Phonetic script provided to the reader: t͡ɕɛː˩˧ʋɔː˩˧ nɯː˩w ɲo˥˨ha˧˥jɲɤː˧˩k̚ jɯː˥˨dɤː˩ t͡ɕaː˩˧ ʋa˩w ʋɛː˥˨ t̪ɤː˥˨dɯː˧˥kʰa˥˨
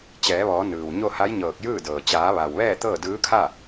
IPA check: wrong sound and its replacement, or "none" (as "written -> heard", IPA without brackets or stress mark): none